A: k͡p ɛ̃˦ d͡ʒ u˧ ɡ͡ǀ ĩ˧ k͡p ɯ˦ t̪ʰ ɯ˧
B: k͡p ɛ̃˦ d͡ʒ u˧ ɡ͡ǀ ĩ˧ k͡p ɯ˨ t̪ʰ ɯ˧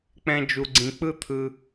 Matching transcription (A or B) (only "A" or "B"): A